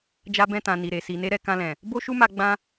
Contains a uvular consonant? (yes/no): no